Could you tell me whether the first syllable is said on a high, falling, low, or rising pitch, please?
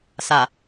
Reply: low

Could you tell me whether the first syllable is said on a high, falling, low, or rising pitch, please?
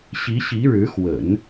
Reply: rising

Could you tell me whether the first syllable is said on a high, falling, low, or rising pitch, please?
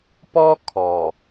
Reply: high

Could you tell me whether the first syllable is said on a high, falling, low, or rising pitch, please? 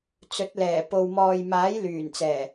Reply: rising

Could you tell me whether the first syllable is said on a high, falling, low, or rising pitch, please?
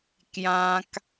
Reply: high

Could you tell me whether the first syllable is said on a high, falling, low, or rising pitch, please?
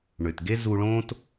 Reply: low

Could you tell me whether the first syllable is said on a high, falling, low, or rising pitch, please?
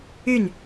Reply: falling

